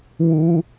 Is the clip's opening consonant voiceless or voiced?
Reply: voiced